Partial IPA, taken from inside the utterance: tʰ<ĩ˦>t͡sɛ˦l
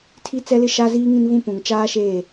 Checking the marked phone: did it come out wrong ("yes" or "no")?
yes